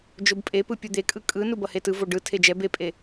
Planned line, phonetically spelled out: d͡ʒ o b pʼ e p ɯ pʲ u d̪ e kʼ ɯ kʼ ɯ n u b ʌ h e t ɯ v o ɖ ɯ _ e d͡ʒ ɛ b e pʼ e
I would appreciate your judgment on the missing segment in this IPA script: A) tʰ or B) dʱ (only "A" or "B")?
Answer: A